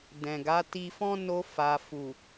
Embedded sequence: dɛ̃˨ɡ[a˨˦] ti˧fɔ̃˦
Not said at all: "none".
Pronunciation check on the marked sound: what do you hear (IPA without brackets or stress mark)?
a˨˦